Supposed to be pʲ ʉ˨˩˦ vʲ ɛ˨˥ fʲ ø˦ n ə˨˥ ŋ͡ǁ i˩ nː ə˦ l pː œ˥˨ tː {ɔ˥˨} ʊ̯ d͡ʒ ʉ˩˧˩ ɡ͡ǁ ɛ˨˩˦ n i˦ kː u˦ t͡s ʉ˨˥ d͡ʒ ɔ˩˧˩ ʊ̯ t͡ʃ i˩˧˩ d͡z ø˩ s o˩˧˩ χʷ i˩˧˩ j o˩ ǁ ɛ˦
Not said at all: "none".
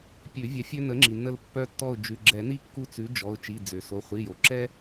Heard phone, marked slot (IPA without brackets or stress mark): ɔ˥˨